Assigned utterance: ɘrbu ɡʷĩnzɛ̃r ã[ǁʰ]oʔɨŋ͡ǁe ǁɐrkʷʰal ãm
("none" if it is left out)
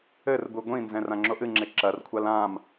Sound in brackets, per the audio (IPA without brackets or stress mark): ŋ͡ǁ